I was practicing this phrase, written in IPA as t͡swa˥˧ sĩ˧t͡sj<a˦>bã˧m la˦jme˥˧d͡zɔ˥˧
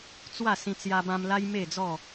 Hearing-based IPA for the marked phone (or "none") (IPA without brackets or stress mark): a˧